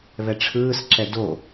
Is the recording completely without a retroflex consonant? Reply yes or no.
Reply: no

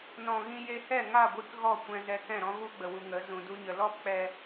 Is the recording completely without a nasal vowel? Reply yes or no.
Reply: no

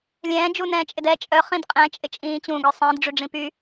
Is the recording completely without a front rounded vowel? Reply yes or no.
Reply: no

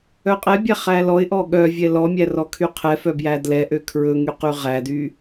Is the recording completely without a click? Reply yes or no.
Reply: yes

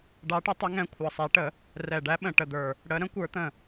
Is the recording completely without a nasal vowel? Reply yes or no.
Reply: no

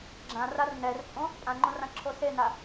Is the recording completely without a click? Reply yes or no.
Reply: no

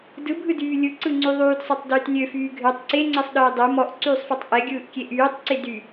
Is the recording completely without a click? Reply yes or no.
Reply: no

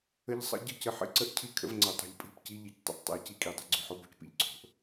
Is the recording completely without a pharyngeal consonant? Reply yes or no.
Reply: no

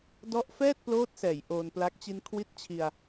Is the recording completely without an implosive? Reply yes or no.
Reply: yes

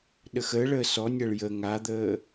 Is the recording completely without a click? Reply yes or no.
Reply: yes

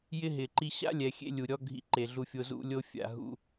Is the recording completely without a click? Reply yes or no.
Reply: no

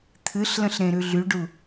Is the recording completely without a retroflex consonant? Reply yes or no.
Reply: no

